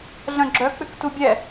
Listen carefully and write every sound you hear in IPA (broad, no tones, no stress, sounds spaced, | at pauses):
ɮ œ̃ ɡ͡ǁ œ k͡p ʏ k t u bʲ ɛ